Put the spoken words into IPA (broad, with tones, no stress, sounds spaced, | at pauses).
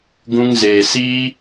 ɡ ũ˧ ŋ z eː˨ s iː˦